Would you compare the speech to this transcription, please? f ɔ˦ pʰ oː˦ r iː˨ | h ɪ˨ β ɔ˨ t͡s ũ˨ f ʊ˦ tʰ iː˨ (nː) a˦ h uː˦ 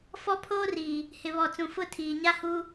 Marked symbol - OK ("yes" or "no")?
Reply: no